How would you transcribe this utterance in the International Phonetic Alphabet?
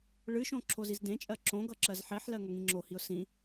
ɭɨʃõ ǁʰozizdẽt͡ʃʼɜ ǁõ ɡʌǁɜzħeħlɜ ŋʌŋĩŋ͡ǁohiʊ̯ sĩ

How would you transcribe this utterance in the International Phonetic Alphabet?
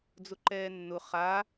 d͡zʊǃɛːnːʊ χa

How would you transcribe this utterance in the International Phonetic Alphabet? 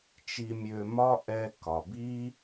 t͡ʃi˧mʲø˧mɒ˥ ʔɛ˧ kɒ˩bi˥

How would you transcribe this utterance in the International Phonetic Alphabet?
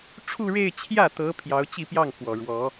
ʈ͡ʂʰu˥˧ɻe˥˧ɪ̯t͡ɕʰjä˥˩t̪ɤ˧˥ pʰjɑ˧˥ʊ̯t͡ɕi˥˧pjɑ˥˩ŋfwɔ˨˩ ɻwɔ˧˥

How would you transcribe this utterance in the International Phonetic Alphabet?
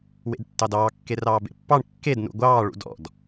wḛdtːɑdɑː kːerɑːbḛpːɑɳ kːed nṵɡʷɑː ɭṵdɔ̰d

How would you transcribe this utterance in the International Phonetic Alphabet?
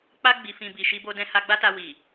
k͡pa˧ɡ͡bi˨fĩ˨ bi˨ʃi˧bo˧ dɛ̃˧ha˧ɡ͡ba˦ta˧ wi˨

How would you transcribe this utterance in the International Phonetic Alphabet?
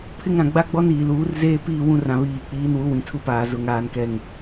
pʰɪ˦ŋ ɾã˨ɡ͡ba˦ɡ͡bɔ˦n iː˨ luː˨˦r zeː˦piː˦˨ wũ˦rã˨βiː˨k͡piː˨˦n wu˨˦wĩ˨tʰu˦paː˨ zʊ˨ŋaː˨nkɛ˨ŋ

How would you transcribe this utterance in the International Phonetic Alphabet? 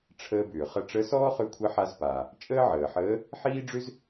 ʈ͡ʂʰəː˧bʏː˩χə˧ ʈ͡ʂə˧˥sɔː˥χʏ˧˥ kʷʰə˧˥ħa˧z paː˩ | t͡ʃʼəː˥ʕəː˩ħəː˧˥ | ħiː˥ɖ͡ʐʏ˥z

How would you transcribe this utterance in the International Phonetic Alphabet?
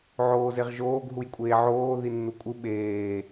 ʕoːzeʁʒoːɡ ɦujkʷʼeːʕoː ðinːukʷʼɨ ɓeː

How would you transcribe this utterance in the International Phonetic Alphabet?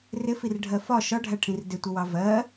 rɪfirɖʱɜ fɒ ʃɒɖʱæʈʰĩr dɪtʷəwɑ vɜ

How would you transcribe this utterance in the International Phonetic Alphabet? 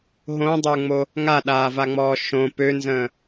ɦõdˤə˞ŋ͡mo | ŋaɗaːvaŋ͡mɔː ʃõ pønzə̃ː

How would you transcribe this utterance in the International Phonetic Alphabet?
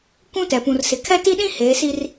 kʷũ˦tɛ˨pũ˨rsɪ˨ kʰɛ˦ti˦ɗĩ˦ heː˨˦si˦r

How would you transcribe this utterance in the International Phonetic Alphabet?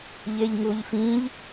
ʎeʎŋuʎfĩʎ

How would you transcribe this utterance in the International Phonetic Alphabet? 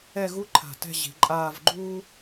ɛ˥˧ɣu˥ ǃʰa̤˧˩tɛ̤˥˧ ʑi̤˩˧ǃʼaː˥˧v ɡ͡ǃuː˥

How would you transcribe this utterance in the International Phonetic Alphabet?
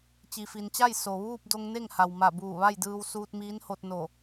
t͡ɕi˩ fi˩nt͡ɕa˥˨j so˩ʋuː˥˨p̚ do˧ŋne˥˨ŋha˩wma˧˩ buː˧˩ʋa˥˨jdɯː˧w suː˧t̚miː˧˥nho˧t̚ no˧˩

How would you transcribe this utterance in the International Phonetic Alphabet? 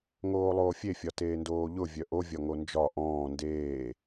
ŋoːlˠoːfʲe fʲɒteːndoːʎʊ vʲœʔo vʲɒŋond͡ʒɒ ʔɔ̃ː ndeː

